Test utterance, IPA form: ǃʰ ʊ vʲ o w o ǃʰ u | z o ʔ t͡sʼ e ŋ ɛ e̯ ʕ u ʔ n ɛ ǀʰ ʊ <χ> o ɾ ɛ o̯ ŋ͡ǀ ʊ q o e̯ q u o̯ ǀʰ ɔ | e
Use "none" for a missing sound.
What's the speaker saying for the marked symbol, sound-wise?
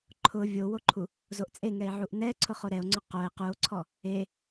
χ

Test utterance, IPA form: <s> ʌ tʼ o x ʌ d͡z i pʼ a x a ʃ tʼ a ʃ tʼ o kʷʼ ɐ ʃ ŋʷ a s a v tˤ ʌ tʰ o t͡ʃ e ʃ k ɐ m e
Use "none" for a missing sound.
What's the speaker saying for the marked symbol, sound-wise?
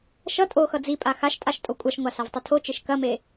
ʃ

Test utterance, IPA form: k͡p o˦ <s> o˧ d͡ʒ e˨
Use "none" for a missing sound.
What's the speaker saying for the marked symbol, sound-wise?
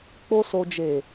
s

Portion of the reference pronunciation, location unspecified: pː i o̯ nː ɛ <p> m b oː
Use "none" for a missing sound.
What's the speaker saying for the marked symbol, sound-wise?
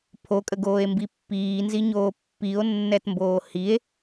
t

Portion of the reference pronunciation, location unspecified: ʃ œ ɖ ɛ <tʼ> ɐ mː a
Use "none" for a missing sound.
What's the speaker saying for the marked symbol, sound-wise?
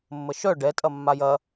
tʼ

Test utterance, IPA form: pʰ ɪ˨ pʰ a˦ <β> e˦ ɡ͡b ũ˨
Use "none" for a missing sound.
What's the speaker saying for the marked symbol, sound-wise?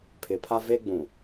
v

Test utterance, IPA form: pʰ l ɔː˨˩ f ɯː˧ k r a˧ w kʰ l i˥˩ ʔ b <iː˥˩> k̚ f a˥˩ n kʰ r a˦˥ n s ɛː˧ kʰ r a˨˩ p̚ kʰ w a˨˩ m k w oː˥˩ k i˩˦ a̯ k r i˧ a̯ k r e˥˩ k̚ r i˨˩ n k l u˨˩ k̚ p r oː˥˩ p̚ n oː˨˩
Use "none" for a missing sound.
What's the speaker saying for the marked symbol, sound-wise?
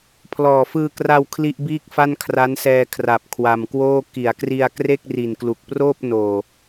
iː˥˩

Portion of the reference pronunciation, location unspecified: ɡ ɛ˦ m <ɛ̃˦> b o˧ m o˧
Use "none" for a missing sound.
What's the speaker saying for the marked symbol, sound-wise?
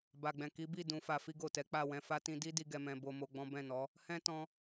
ɛ̃˧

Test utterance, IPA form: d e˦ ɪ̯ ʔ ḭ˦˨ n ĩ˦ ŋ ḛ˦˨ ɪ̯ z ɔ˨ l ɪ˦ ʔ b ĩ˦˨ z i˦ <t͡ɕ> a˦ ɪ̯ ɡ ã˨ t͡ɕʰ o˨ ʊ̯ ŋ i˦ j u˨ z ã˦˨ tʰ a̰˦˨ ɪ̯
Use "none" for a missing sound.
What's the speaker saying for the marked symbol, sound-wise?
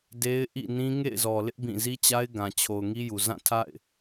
t͡ɕ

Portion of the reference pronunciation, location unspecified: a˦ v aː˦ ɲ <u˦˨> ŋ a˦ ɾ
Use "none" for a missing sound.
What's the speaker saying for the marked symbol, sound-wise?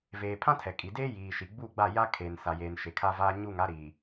u˦˨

